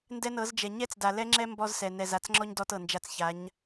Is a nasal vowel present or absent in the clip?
absent